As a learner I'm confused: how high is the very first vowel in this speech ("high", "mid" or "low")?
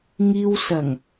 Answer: high